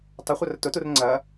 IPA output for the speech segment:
tˤ ɐ χʷ ɐ r t ʊ t u r ŋ͡ǀ ɐ

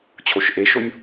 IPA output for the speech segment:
t͡ɕʰ o ʃ ʔ e ʃ o nʲ

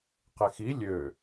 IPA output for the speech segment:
q e x i lʲ ø

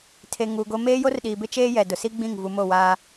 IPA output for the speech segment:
tʰ e˨ ŋ uː˨ ɡ o˦ m eː˦ j o˦ r ɗ iː˨ b ɪ˦ t͡ʃ eː˦ j ɛ˨ d ʊ˨ s i˦ ɡ͡b ĩ˦˨ ŋ v u˨ m o˦˨ w aː˦

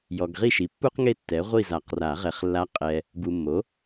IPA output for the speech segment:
j ɔ˨ ɡ ʁ i˥˨ ʃ i˩˥ pː u˥ q ŋ e˥ tː ɛ˩˥ ʁʷ i˥˨ z a˨˩˦ q r a˨˩˦ ʁ ɛ˨˩˦ χ lː a˧˥ qʼ ɛ˨ | b u˨ mː o˩˥

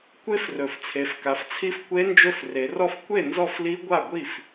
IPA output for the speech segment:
kʷ e˦˥ f r ɵ˩˧ f t͡sʰ e˩˧ f k a˩˧ f t͡sʰ i˦˥ f kʷ e˦˥ n d͡ʒ ɵ˦˥ f r e˩˧ r ɔ˥˨ f kʷ e˥˨ n z ɔ˥˨ f l i˦˥ ɡʷ a˥˨ ɡʷ i˥˨ f

